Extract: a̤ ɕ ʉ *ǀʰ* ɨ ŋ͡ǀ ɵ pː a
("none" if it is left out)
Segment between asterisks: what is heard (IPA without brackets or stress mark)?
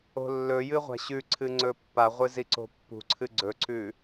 ǀʰ